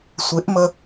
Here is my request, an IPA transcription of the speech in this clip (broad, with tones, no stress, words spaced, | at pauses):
sʷɪ˨˦ʔmə˧